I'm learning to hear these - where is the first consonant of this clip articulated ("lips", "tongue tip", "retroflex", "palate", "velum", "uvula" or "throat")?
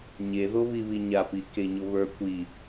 palate